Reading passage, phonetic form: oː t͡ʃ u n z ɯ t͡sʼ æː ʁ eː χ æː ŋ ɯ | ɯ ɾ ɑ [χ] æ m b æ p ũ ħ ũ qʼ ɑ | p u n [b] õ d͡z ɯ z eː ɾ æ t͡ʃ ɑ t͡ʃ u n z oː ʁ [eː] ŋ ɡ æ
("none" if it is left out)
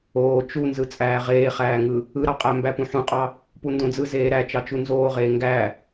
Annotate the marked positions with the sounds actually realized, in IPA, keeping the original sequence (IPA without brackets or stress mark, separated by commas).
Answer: qʼ, d, eː